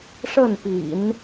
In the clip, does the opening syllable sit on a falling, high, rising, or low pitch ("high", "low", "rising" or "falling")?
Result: falling